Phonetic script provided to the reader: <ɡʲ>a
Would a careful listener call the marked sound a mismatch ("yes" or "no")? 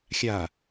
yes